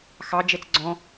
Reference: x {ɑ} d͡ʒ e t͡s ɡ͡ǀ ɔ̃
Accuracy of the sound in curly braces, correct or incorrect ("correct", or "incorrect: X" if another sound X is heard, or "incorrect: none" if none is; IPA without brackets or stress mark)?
correct